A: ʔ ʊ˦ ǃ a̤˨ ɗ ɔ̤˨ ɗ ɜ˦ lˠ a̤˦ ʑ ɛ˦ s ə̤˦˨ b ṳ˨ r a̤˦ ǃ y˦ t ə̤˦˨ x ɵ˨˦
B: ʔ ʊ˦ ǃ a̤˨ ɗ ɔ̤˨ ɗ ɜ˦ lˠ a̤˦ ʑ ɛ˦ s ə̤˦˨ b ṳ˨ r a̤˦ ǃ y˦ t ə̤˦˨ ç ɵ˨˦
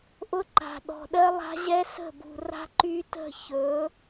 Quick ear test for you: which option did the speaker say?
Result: B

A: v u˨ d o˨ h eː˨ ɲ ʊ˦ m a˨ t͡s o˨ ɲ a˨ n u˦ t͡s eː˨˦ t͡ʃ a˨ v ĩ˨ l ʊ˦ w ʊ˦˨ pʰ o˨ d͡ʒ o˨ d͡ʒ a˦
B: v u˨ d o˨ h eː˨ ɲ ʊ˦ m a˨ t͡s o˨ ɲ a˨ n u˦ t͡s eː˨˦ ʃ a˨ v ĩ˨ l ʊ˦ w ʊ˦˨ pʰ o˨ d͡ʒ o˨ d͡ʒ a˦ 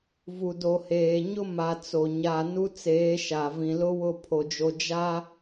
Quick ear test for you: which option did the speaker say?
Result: B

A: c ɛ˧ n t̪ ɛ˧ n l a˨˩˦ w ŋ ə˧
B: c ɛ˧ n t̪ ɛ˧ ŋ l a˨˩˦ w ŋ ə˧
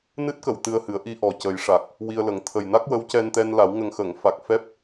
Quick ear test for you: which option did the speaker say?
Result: A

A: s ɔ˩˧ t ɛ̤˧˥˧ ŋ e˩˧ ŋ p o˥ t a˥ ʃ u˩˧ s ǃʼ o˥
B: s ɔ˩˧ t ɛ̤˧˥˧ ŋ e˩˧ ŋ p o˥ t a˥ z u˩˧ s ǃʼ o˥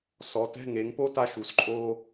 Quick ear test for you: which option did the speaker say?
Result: A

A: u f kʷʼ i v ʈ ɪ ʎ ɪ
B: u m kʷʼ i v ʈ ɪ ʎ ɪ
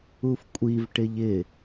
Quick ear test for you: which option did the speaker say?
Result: A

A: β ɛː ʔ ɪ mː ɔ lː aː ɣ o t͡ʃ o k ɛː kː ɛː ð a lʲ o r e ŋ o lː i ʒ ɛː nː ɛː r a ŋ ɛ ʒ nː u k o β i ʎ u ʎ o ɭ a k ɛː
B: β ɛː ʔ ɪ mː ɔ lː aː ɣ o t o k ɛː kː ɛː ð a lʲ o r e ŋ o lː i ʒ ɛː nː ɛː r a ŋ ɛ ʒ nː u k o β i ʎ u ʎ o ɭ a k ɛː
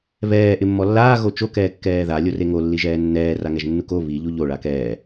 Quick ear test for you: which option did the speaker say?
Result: A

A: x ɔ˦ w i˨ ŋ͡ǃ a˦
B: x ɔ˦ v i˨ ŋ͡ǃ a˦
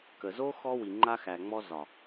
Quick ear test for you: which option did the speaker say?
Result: A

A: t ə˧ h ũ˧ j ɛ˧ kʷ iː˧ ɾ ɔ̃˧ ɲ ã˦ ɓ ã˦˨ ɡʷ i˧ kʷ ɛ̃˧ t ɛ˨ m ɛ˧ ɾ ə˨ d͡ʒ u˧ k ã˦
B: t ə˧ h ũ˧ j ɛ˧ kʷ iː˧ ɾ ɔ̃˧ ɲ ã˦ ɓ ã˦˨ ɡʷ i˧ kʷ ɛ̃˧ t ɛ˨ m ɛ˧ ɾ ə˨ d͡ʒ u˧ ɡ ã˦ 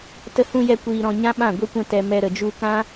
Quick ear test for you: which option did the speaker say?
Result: A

